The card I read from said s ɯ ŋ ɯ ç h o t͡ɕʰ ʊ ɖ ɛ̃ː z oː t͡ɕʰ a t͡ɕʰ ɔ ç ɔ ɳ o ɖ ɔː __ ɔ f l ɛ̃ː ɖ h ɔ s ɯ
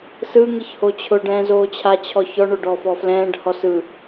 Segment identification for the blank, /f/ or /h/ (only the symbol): f